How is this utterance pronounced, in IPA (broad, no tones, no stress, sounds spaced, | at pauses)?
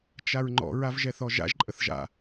t͡ʃ a ɹ ŋ͡ǃ ɔ̰ ɹ a v ʒ ɛ θ ɔ ʒ a̰ ʒ ǃʼ ə θ ʒ a̰